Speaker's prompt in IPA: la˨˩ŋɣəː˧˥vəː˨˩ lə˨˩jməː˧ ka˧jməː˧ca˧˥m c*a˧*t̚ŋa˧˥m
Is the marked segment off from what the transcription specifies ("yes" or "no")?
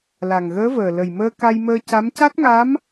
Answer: yes